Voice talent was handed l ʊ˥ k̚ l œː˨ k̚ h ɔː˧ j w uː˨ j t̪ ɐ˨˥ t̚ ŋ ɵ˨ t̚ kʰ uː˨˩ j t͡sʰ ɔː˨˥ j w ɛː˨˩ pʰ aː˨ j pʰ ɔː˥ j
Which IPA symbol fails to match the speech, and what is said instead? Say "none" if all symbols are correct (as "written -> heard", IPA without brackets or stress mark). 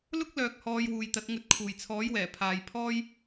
none